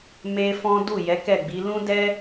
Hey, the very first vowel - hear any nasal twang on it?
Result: no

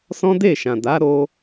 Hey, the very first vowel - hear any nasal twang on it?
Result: yes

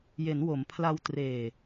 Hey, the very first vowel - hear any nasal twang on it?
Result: no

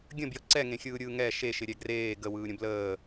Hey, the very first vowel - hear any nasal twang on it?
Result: yes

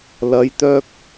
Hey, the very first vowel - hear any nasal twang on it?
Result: no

